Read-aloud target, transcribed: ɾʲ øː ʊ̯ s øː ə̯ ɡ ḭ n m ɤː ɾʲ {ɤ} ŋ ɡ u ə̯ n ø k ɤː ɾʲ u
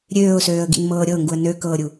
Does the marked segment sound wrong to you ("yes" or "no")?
no